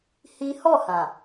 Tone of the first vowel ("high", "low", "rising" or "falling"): high